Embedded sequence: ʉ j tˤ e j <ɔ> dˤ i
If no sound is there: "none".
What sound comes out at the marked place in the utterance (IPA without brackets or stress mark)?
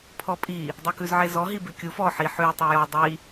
ɔ